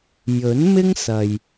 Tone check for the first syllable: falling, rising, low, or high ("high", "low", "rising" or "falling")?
rising